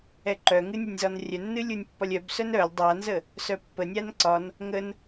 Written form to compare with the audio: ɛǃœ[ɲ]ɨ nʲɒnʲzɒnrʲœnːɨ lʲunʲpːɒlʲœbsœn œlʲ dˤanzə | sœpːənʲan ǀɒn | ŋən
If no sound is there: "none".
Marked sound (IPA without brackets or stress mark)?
ŋ